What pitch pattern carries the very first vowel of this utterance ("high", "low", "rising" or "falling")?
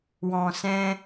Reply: low